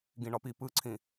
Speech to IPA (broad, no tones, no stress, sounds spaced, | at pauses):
ɡ ĩ ɳ ɒ p i p ɯ ǀʰ ĩ